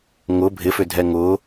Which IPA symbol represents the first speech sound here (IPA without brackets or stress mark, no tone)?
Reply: ŋ